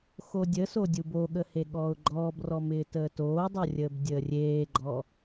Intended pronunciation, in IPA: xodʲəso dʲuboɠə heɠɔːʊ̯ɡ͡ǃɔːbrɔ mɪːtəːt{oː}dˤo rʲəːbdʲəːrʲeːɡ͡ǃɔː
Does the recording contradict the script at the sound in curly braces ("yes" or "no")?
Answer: no